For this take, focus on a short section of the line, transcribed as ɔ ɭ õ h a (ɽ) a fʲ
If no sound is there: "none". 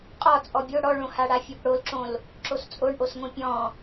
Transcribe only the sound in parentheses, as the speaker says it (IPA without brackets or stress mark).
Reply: ɽ